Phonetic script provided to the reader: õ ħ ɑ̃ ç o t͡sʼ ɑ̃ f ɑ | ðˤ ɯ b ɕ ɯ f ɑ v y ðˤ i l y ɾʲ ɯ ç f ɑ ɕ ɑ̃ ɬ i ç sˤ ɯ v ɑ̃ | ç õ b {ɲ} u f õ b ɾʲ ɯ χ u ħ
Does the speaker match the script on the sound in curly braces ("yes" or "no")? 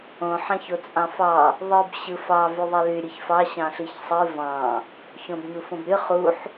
yes